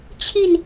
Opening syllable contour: falling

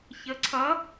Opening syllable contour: rising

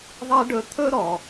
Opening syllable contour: high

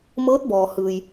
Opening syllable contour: rising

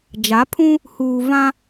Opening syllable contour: rising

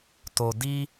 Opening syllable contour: low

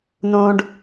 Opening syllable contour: high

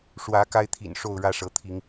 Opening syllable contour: rising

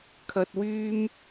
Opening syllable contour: high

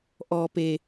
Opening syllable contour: low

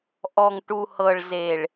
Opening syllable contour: low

